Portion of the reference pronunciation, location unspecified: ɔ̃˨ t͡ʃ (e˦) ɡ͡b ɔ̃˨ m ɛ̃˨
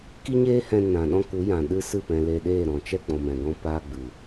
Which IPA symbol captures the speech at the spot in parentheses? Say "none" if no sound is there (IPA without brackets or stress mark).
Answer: ɛ˦